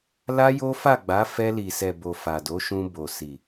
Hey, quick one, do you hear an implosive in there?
no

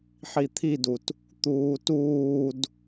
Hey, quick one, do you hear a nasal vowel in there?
no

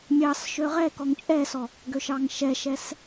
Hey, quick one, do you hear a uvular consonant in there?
yes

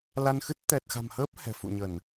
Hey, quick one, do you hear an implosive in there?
no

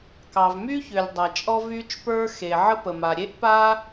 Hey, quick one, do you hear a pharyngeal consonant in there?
yes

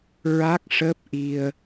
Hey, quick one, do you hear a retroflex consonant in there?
yes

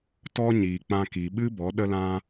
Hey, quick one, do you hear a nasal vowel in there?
yes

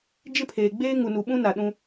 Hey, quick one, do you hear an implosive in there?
yes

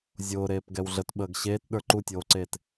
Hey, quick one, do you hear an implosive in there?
yes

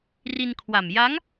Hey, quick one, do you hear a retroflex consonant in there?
no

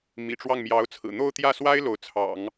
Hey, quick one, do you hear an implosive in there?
no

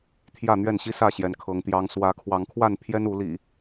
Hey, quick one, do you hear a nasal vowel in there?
no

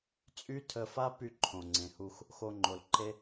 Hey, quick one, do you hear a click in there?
yes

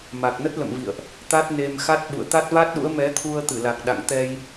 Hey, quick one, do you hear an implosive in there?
yes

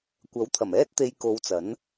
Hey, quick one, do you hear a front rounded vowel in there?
no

